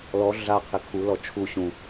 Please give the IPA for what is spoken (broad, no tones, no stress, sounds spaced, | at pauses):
l ɔ ɮ a qʰ ɪ kʰ u l ɔ t͡ʃʰ u ɕ ũ